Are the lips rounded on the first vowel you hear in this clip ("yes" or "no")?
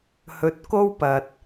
yes